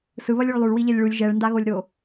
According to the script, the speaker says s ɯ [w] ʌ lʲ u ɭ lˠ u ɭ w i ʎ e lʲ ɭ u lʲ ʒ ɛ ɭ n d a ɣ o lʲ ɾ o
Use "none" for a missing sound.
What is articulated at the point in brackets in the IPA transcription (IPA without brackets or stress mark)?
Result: β